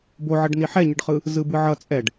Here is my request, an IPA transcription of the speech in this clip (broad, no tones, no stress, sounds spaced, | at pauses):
b o ʕ ʌ ɖ n i ħ ɛ ɲ ɯ ɖ χ ɯ | z ɯ b ɯ ʕ ʌ t͡sʼ ɛ ɖ